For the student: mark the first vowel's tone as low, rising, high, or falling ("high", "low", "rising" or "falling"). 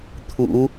rising